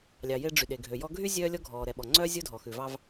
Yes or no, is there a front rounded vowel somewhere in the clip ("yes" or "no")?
yes